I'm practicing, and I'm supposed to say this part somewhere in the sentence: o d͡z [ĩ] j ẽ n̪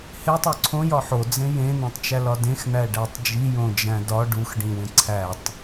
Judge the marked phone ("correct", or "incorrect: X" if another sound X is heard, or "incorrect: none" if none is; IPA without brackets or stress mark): incorrect: ẽ